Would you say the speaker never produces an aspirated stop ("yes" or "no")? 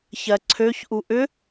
no